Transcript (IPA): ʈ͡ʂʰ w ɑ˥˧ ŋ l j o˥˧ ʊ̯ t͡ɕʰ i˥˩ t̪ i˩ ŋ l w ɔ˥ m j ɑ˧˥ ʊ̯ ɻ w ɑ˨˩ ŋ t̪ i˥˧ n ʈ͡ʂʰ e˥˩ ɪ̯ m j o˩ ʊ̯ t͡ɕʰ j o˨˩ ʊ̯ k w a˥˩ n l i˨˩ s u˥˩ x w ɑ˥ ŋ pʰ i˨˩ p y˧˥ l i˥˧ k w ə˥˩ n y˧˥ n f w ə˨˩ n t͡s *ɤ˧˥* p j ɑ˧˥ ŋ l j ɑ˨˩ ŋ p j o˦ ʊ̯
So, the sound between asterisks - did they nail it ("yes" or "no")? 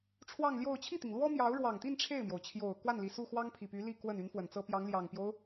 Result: no